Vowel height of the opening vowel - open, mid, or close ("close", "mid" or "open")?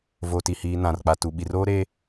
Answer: mid